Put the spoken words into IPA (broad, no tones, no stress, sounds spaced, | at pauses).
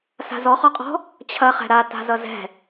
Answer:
s a̤ z ɔ χ ɔ qʼ ɔ̤ | t͡ɕʰ ɐ χ ɛ̤ ɾ a t a̤ z ʌ z ɛ̤